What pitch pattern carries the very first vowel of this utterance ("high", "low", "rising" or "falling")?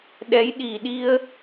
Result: rising